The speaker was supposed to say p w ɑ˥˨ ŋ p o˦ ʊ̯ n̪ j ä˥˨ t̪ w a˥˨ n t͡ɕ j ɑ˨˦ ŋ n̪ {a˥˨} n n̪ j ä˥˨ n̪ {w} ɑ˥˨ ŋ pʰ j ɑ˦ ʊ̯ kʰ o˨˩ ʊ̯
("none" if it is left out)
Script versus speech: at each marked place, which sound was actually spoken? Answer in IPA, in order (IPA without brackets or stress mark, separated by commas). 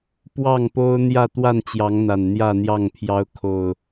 a˨˩, j